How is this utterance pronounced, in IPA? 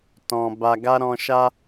t ɔ̃˨ b a˧ ɡ a˦ ɾ ɔ̃˦ ʃ a˦

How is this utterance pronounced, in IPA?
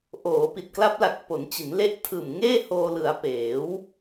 ʔ oː˩˦ p i˨˩ t̚ k l a˦˥ p̚ l a˨˩ k̚ p o˩˦ n t͡ɕ i˩˦ n l e˦˥ ʔ tʰ ɯː˨˩ m ŋ eː˥˩ h oː˧ l ɯ˩˦ a̯ p eː˩˦ w

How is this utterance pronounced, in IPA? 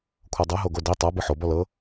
kʷʰ ɤ dˤ ɤ ɦ o ɡ o d i tˤ a b ɯ ħ o b ɔ l ɤ

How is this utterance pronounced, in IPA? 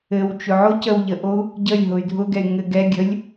ɘ w t͡ʃ ʊ ʕ o c ə w ʎ ə ʔ o u̯ | ɟ ə lʲ ɦ ʊ y̯ dʱ ʊ ɡ ɛ y̯ ŋ ɘ ɡ ɛ ɡʲ ə lʲ

